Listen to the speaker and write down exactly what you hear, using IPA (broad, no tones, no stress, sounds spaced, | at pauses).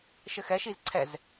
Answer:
ʃ ɘ x ɛ ʃ i z ǀʰ ɛ z